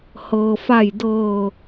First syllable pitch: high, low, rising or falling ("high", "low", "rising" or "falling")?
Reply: low